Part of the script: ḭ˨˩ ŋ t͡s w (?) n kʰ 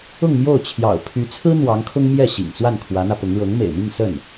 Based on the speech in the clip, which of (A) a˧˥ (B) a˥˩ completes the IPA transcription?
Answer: B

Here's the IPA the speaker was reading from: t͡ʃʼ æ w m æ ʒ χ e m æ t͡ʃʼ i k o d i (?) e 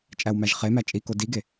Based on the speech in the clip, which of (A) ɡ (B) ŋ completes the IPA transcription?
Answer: A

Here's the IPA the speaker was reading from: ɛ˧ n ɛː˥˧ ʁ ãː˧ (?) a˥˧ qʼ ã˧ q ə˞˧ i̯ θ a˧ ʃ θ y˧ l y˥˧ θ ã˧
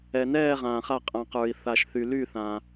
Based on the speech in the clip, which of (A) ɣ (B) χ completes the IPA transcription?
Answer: B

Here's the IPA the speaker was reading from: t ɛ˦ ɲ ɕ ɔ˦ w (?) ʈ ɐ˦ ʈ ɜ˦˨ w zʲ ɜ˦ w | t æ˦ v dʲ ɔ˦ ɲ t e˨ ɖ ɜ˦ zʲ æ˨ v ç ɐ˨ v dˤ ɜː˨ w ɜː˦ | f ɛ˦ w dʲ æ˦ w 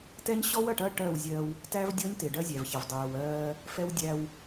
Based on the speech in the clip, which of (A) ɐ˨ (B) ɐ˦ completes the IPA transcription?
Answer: A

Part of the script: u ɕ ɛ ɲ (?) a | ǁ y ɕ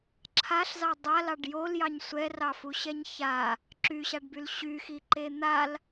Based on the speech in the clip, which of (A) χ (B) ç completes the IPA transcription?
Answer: B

